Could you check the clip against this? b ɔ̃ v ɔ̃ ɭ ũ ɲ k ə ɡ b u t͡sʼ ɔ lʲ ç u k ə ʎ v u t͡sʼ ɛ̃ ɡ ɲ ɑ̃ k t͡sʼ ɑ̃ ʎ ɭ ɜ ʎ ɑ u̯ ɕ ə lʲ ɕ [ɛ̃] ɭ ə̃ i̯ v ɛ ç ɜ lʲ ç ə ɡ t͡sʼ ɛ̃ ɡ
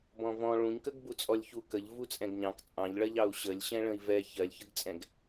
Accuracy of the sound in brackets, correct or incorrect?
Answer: correct